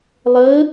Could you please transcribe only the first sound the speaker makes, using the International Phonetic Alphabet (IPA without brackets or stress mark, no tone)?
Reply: lˠ